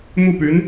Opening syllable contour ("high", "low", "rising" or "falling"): falling